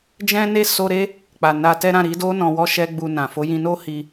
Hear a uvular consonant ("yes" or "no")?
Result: no